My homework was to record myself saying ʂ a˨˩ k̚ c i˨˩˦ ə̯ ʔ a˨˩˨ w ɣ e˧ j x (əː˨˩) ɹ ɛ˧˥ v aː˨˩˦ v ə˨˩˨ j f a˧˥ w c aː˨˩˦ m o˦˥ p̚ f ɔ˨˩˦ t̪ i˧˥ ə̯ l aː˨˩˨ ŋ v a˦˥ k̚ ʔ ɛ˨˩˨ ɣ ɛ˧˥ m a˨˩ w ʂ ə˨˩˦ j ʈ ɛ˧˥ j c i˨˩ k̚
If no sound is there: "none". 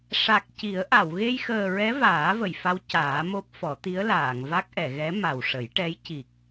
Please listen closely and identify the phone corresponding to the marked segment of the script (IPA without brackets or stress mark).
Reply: əː˨˩